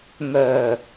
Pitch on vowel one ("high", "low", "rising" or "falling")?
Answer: low